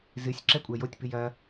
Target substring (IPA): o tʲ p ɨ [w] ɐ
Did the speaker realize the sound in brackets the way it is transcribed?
no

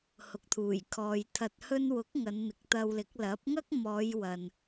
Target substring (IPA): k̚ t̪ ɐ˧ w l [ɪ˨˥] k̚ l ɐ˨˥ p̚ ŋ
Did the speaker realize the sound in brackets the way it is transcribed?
yes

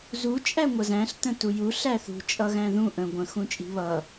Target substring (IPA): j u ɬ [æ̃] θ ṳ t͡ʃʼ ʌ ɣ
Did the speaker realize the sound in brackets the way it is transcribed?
no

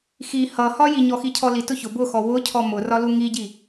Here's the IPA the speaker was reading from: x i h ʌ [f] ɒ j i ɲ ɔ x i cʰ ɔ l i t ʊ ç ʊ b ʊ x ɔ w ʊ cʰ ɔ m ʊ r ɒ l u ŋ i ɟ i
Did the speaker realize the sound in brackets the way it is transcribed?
no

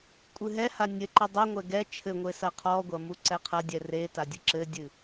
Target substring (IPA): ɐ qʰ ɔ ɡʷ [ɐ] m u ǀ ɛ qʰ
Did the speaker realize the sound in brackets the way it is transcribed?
yes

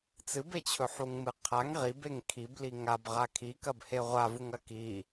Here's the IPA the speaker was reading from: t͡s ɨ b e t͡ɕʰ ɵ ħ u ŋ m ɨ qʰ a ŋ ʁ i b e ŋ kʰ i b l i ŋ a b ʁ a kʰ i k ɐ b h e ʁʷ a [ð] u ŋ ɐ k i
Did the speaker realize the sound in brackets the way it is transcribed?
no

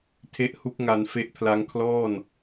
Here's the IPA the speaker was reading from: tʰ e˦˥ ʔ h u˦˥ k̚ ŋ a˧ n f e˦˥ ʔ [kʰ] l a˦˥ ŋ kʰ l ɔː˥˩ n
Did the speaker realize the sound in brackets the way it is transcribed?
no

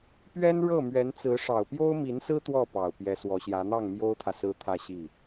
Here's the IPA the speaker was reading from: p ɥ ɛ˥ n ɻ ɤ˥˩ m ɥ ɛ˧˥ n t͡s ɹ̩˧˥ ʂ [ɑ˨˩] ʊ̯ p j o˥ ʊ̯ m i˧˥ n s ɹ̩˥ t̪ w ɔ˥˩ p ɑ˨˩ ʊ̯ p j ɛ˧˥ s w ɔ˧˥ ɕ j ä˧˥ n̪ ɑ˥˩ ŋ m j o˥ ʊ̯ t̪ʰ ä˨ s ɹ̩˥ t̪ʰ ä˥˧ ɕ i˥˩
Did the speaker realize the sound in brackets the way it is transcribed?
yes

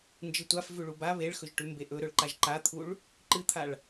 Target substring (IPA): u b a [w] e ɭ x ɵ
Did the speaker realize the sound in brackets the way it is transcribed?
no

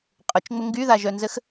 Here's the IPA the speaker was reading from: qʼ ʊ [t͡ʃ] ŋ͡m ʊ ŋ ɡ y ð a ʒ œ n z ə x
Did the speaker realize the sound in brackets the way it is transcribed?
yes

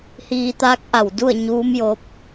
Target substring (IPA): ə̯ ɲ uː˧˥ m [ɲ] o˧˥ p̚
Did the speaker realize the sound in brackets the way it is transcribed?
no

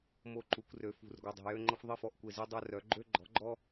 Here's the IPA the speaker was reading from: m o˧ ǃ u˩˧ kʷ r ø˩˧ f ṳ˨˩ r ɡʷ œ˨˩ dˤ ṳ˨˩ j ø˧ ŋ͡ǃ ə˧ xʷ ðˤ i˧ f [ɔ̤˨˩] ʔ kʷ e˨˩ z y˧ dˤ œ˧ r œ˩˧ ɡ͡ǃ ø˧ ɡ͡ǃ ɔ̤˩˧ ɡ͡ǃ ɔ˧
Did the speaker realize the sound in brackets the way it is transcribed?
no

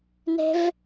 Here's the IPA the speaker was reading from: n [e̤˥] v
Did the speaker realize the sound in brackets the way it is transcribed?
yes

